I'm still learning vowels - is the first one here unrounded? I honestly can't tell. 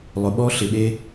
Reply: no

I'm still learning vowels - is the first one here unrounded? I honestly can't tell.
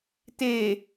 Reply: yes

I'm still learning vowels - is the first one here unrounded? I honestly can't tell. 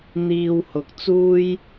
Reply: yes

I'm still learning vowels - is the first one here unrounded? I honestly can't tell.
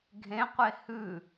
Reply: yes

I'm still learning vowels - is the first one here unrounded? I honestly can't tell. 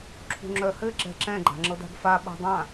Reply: no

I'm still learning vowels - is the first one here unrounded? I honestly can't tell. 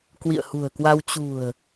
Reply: yes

